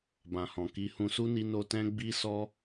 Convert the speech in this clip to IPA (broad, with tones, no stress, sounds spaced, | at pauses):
b ã˨ h ɔ̃˨ k i˧ h ũ˧ s u˦ n i˧ n o˧ t ɛ̃˦ ɡ͡b i˦ s ɔ˦